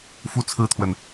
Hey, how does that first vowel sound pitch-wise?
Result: falling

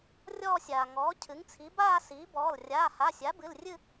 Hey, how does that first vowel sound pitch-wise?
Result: falling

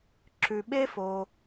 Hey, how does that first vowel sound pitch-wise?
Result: low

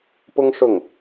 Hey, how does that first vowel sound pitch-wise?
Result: high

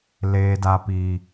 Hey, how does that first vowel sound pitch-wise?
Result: low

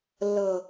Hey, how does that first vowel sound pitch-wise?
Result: low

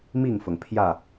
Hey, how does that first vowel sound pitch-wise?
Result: falling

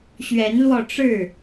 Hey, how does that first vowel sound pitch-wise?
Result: rising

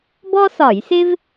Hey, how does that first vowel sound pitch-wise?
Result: high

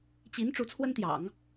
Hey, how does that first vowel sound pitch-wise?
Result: rising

